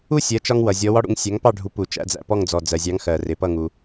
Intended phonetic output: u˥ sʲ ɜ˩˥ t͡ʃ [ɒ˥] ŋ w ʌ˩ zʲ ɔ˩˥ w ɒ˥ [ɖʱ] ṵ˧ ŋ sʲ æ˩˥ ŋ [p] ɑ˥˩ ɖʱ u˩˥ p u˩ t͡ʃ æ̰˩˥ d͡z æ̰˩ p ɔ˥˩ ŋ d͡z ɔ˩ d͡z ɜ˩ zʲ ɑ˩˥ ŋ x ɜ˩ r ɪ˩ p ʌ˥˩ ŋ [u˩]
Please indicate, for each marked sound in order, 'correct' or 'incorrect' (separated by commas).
incorrect, incorrect, correct, correct